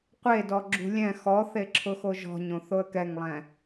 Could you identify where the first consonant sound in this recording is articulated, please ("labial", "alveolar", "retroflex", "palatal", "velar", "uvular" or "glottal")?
uvular